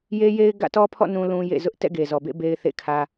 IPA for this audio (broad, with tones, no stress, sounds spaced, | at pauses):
j e˦ j e˦ ɪ̯ ɡ ä̰˦˨ t ɔ˦ pʰ ɔ̰˦˨ n ũ˦ l ũ˦ j ḛ˦˨ z ʊ˦ ʔ t ɛ̰˦˨ ɡ e˨ z ɔ˨ b ḛ˦˨ b e˦ ɪ̯ θ ḛ˦˨ kʰ ä˦